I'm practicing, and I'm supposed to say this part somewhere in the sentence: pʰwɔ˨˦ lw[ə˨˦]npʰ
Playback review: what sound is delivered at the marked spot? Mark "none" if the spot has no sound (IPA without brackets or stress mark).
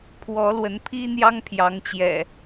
ə˨˦